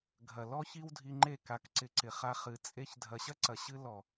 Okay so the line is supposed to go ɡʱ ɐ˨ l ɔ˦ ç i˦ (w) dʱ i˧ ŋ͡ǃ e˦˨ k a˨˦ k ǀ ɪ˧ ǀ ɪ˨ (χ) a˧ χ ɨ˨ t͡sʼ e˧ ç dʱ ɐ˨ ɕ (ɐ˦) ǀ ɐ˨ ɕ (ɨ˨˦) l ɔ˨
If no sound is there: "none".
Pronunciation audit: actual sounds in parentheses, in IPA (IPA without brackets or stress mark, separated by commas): w, χ, ɐ˦, ɨ˧